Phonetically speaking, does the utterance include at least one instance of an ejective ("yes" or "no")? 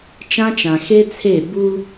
no